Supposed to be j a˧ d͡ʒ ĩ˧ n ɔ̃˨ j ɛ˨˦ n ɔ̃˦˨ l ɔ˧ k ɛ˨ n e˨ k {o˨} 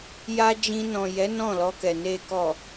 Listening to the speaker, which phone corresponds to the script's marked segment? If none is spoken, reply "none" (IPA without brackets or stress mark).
ɔ˨